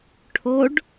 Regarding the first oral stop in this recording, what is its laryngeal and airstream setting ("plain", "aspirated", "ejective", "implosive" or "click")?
aspirated